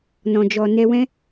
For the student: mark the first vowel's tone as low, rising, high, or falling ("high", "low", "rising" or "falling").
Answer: low